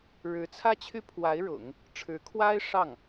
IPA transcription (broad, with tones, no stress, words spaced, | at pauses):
ɻɻ̩˧˥t͡sʰä˥t͡ɕʰy˥pʰwa˧˥ɪ̯ ɻʊ̰˨˩˦ŋ | ʈ͡ʂʰɻ̩˧˥kʰwa˥ɪ̯ ʂɑ˥˩ŋ